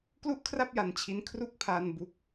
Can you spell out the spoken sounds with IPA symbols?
klu˥˩ʔkʰra˥˩p̚ ja˧nt͡ɕʰi˦˥n kʰru˥˩k̚pʰa˧n bu˦˥k̚

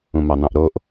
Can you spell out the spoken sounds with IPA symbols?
ũmɑn̪ɑ̃ʔɾoʔ

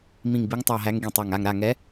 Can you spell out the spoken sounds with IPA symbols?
mĩ˧˩ŋbi˨˦ŋtˤa˧˩ɦæ˨˦ŋ ɡĩ˧˩tˤæ˧˩ŋ a˧˩ŋɾa˧˩ŋɛ˨˦

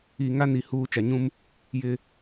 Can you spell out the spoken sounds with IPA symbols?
iː˨ŋa˦ni˨ huː˦ t͡ʃa˨ɲũ˦m | jɪ˨

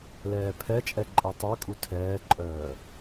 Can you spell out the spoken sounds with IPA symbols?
lɛːpʰɛt͡ʃʼɛ ǃʼetˤœkʼu tʰɛːǃʼœː

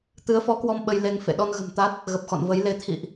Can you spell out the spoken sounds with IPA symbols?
t̪ɨ˨˦ə̯fɔ˨˦kwɔ˧m ɓə˧jle˧ŋfḛ˧˨ ɗɔ˧nɣə̤˨˩mt̪a˦˥t̚ | ɣə˨˩p̚xɔ̰˧˨nvə˨˦jle˧ t̪ʰḭ˧˨ʔ

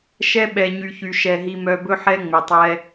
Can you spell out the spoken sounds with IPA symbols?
ʃɛ˦ɓɛ˨ ɲy˨çy˨ ʃɛ˨ ɦi˨mœ˨bɵ˦ ħɛ˦ŋ͡me˨tˤɛ˦

